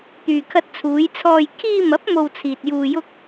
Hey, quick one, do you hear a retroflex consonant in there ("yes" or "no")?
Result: no